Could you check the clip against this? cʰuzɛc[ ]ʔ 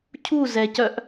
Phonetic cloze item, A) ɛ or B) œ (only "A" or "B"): B